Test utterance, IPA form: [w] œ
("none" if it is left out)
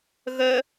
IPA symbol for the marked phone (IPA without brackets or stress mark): ɣ